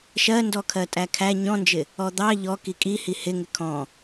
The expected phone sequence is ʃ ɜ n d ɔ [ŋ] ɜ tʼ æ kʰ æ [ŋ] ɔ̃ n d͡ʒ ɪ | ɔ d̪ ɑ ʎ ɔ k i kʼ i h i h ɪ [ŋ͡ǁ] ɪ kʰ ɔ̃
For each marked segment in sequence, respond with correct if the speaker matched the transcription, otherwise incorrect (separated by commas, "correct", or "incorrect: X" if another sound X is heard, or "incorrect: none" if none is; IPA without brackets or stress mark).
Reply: incorrect: kʰ, incorrect: ɲ, incorrect: ŋ